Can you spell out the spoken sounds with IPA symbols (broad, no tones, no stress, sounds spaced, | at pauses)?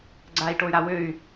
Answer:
ɡ͡ǀ a i̯ ʈ o y̯ ɾ a w ø y̯